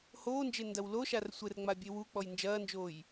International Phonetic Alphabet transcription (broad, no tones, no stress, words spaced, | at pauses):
hoːnd͡ʒe ndɐwloʃar sʷɘrŋ͡ma bʲewuk͡pɔj nd͡ʒɐːnd͡ʒoːj